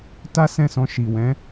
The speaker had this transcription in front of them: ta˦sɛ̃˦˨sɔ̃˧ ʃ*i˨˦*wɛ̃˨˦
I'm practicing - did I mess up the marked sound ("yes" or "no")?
yes